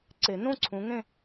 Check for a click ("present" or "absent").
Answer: present